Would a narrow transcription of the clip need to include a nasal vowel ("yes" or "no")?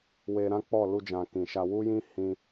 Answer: yes